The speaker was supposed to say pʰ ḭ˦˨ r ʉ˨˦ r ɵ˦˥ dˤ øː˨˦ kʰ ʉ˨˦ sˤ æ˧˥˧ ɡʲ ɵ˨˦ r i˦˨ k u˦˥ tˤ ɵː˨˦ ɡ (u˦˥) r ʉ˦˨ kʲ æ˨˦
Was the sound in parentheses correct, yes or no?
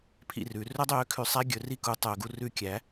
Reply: yes